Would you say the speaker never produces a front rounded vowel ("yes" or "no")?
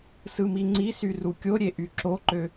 no